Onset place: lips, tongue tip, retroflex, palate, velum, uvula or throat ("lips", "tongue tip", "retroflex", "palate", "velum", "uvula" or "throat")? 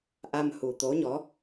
throat